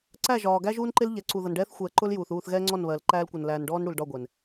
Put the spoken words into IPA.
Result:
ǀ æ˦˨ ʒ ɒː˨ ɡ æ˦ ʒ uː˦ n ǃ ɪ˦ l ʎ ɛ˨˦ ǀ u˨ ð ʌ˨ n ɖ ɛː˦ θ xʷ ɛː˨ ǃ ʊ˦ l j uː˨ θ uː˦˨ θ ɣ ɛː˦ ŋ͡ǀ ɔ˦˨ n β ɜ˨ l ǃ æː˦ l kʷ ʌ˨ n l æː˨ n ɖ ɔː˦ n ɽ u˨ l ɖ ɒ˦˨ ɡʷ ɛ˨ n

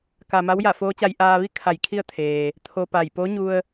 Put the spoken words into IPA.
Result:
k a˩ m a˧˥ w j a˧˩ f oː˧˥ t͡ɕ a˧ j ʔ aː˧ ʋ i˥˨ kʰ a˧˩ j kʰ i˥˨ ə̯ t̪ʰ eː˩ | t̪ʰ o˧ p a˧˩ j p o˧˥ ɲ u˧ ə̯

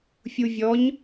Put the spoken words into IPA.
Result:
fʲ u vʲ ɔ ɲ

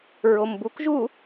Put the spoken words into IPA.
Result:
ɹ o m b u k ʒ u

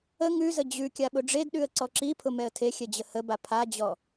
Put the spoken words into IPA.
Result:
ə ŋ ʉ z ə d͡ʑ ʉ kʲ a ɓ ʊ ɖ͡ʐ e d ɗ ʉ ə̯ ǀ ɔ ǁ i pʰ ʊ m ɛ ə̯ tʰ e xʲ ɛ d͡ʑ ə h ə b a pʰ a d͡ʑ ɔ

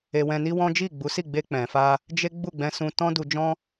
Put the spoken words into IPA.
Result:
e˧ w ɛ̃˧ n i˦ w ɔ̃˦ d͡ʒ i˦˨ ɡ͡b u˨˦ s i˦˨ ɡ͡b e˧ k͡p ɛ̃˨ f a˧ | d͡ʒ e˦ ɡ͡b u˦˨ ɡ͡b ɛ̃˧ s ũ˧ t ɔ̃˦ d u˧ d͡ʒ ɔ̃˦

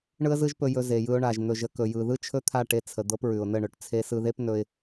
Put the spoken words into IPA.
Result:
ɳ ɯ˦ ə̯ z ɯ˦ ʒ p ɵ˧ j ɵ˧ z e˨ j ɯ˧ ʊ̯ ɳ a˨ ʒ n̪ ɵ˨ ʒ ə˧ k ɵ˨ j ɯ˨ ð ɯ˦ t͡ʃʰ ɵ˦ t̪ʰ a˦˨ ʈ e˧ t͡sʰ ə˨ d̪ ɤ˧ p ɹ ʉ˨ ʊ̯ n ə˦˨ ɳ ɵ˨ ʈ t͡sʰ e˧ s ɯ˧ ð e˦ p n ɵ˧ ɪ̯

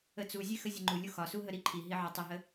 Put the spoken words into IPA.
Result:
ə t͡s u zʲ e x ə zʲ ə ŋ͡ǃ u lʲ u x ɒ s u ɦ ə ɾ i ǃʰ i ɦ i ʕ ɒ tˤ ə ɦ ə

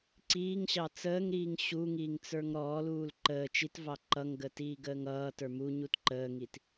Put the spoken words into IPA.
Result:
ǀ iː ŋ ɕ ɑ t͡s əː ŋ ɾ iː ŋ ɕ u ŋ iː ŋ t͡s ə˞ ŋ ɾ ɔː l uː l ǃ əː t͡ʃ i t v ɑ ǃ ʌ ŋ ɡ əː t iː ɡ əː ŋ ʌː t ə˞ m u ɲ u t ǃ əː ŋ i t

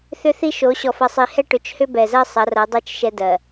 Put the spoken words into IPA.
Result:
θ ʏ˦ θ i˦ ʃ o˨˦ ɕ ɔ˨ f ɐ˨ sˤ i˨ h ɛ˦ ʈ ʏ˨ t͡ʃ h ʏ˦ b ɛ˨ z ɜ˦ sˤ ɐ˨˦ r ɐ˨˦ dˤ ɛ˦ t͡ʃ ʃ ɛ˦ d ɜ˨

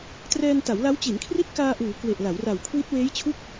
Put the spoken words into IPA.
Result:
t r ɛː˧ n t a˩˦ w l a˦˥ w t͡ɕ i˩˦ n kʰ r i˦˥ t̚ k aː˧ ʔ uː˩˦ k w e˨˩ ʔ l a˩˦ w r a˨˩ w kʰ w i˦˥ t̚ w eː˦˥ j t͡ɕʰ u˥˩ k̚

